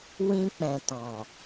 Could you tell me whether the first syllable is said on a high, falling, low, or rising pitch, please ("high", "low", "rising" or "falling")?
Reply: high